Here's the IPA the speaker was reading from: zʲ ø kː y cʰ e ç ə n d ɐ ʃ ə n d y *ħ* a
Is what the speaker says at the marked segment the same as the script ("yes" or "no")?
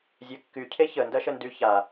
no